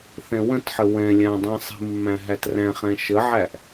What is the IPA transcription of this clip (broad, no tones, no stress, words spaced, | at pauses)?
θɛ̃wə̃tħə wɛ̃lʲã dˤɛ̃sˤi̤mːæ̃ ɦætræ̃χɛ̃ ʃəʕæʔ